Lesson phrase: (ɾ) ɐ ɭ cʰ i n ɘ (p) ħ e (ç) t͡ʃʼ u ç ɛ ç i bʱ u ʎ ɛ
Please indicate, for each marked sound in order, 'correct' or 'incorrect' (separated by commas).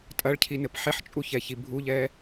incorrect, correct, incorrect